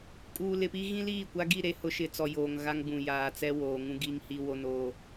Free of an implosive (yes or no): yes